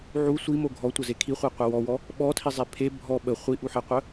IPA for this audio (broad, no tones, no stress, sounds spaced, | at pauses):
ʕ u sʷ i m o ɡʱ ɔ tʷ ə z e kʰ i χʷ a qʷ ɛ w ɔ w ɔ | ɓ ɔ tʰ i zˤ e pʰ e bʱ ɔ ɓ ə χʷ i ʔ u ħ ɛ qʷ œ